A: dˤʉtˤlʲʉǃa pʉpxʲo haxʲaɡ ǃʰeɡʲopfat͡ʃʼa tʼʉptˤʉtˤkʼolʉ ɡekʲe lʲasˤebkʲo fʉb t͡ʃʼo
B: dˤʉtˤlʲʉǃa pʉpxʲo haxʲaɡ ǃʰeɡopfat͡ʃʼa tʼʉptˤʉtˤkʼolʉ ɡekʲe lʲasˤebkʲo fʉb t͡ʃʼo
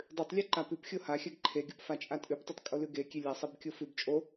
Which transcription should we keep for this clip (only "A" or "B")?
A